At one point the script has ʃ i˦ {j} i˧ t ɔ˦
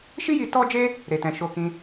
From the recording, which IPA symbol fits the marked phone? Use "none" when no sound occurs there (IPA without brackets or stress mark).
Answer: j